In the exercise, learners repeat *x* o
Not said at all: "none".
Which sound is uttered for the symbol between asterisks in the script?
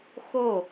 x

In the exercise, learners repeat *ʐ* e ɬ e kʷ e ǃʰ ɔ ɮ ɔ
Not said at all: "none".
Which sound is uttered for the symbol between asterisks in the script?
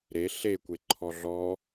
ɾ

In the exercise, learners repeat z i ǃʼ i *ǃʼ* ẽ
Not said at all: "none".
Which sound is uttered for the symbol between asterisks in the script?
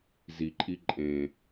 ǃʼ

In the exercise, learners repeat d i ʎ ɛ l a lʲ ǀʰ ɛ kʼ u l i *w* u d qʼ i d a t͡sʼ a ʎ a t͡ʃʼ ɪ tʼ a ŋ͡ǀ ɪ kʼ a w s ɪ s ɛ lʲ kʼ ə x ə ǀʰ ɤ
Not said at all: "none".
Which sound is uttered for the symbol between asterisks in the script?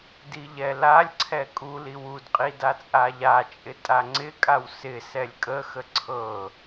w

